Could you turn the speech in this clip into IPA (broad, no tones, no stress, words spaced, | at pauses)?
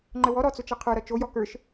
ŋ͡ǃəwɔ ɾɔt͡sʊt͡ʃʌ qʰə˞ɾʌ t͡ʃojɔ kə˞ʃ